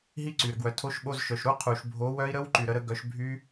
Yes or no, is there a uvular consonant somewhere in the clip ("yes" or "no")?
yes